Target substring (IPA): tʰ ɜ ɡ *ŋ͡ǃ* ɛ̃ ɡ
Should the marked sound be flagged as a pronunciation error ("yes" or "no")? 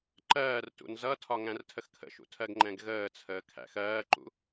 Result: no